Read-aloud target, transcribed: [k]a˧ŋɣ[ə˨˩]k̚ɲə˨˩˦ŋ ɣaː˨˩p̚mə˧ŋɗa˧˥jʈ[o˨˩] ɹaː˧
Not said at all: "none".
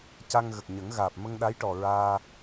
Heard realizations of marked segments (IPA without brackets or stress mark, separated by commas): c, ə˨˩, ɔ˨˩